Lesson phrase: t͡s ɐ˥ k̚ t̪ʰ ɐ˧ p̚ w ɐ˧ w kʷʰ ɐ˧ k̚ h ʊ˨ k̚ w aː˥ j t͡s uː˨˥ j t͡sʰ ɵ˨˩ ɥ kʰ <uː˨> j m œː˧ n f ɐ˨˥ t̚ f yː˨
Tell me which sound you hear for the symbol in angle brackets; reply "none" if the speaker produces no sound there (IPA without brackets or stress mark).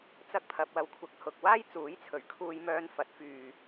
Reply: uː˧